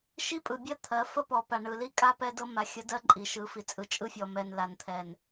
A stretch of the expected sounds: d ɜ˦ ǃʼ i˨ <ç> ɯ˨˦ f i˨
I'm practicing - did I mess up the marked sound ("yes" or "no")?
yes